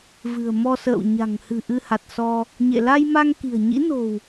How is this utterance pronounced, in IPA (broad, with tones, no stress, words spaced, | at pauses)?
vɨ̤˨˩ə̯mɔ˧sə̰ː˧˨w ɲa̤˨˩ŋ hɨ̤˨˩ ʔɨ˧ha˨˩t̚sɔ˧ | ɲḛ˧˨ la˧jma˧ŋ ki̤˨˩ə̯ɲḭ˧˥no̤˨˩w